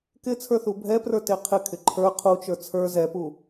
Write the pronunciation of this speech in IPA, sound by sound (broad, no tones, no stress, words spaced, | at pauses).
kɪ t͡sʰə˞θubʱɛprə˞ teqʰɪkʰɪ ǃʰə˞ qʰut͡ʃə˞ t͡sʰə˞ zɛpu